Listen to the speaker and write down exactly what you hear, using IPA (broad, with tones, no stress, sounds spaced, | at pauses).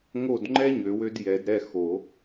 ŋ o˦˨ d ŋ͡ǃ ɛ˥ ɲ ø˨˩˦ w ø˥ d j ɛ˨˩˦ d ɾ ɛ˦˨ x o˨˩˦